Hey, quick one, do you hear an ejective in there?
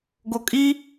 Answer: yes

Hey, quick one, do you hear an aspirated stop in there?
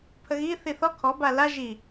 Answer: yes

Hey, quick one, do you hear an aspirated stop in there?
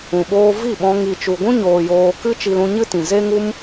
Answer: no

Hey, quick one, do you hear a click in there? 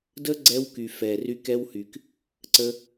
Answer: yes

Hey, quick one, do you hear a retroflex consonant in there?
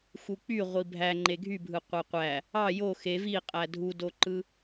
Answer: no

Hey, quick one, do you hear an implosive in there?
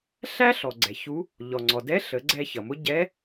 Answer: no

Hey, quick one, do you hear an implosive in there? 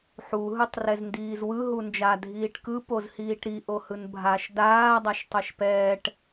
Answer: no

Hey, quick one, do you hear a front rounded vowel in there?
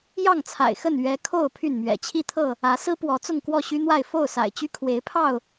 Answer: yes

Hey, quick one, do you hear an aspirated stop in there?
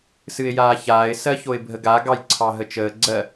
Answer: yes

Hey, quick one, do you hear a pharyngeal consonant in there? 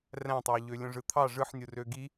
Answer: yes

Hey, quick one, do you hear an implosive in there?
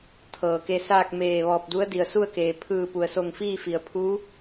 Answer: no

